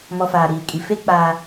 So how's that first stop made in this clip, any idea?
ejective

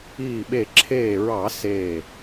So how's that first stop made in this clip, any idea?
implosive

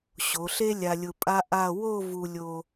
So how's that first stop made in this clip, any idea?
ejective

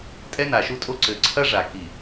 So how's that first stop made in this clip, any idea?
ejective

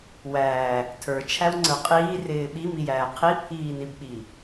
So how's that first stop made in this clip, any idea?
aspirated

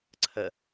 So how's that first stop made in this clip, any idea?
click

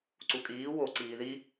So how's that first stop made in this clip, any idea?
click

